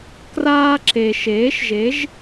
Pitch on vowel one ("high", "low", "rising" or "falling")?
high